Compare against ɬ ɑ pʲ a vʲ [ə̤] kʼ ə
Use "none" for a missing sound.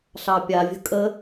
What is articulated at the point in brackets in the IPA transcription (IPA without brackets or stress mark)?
ə̤